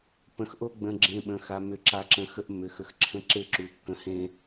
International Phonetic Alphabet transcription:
p ə̃˨ x ʔ o˦ ɡ͡b ə̃˨ ɡ͡ǁ ẽ˨ ɓ ə̃˨ x a˨ m ʏ˨ ǁ a˨ ǁ ə̃˨ x ə˦ ʔ mː ʏ˨ x ə˨ x ǁʰ ə̃˦ ǁ e˦ ǁ u˨ kː ə̃˨˦ h ẽ˦

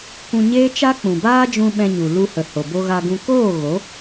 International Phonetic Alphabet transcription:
kʷ ũ˧ ɲ eː˦ t͡ʃ a˦ k͡p ũ˨ b aː˦ d͡ʒ ũ˧ ɓ ɛ̃˧ ɲ u˨ l u˧ h ə˨ h o˨ b o˧ ɣ a˧ ɡ ũ˧ k oː˦˨ ɣ o˨˦

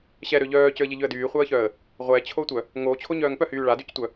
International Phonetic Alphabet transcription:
ɕ ɛ ɾ ø ʎ œː c ø ə̯ ʎ e ʎ ø ə̯ d yː χʷ œ ə̯ ç œ ə̯ | ʁʷ ɛ t͡ɕʰ o tʷ œ | ŋ oː t͡ɕʰ o ɲ œː ŋ p œ h yː ɭ a d y c tʷ œ

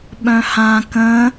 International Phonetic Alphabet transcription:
ɓ œ̃ h ã k ə̃

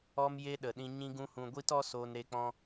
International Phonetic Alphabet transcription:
ɔ˦ m j e˦ ɗ ə˨ ɗ ĩ˧ ɲ ĩ˦ ɡ ũ˦ h ũ˧ ɡʷ i˦ t ɔ˦ s oː˧ n ɾ e˧ k͡p ɔ̃˧

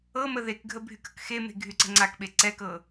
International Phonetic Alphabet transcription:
ɤ m ə ð e k ɡʱ ə bʱ y k ə̤ k x e m e̤ ɡʱ y ǀ ə̤ ŋ͡ǀ a k ɓ e ǀ ɛ k ɤ

